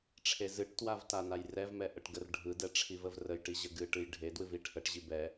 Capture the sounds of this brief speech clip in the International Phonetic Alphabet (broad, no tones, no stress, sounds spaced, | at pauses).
ʈ͡ʂʰ e z ɨ ʈ t w a v t a n a j r ɛ v m ɛ ʔ ə ʈ ɡ ə r ɖʱ ɯ d ɛ ʈ͡ʂʰ i v ə v r ə j ʈ i ʑ ə ɡ ɨ ʈ ɨ j ɖʱ e d w ɨ v i ʈʰ ə ʈ ʑ i b ɛ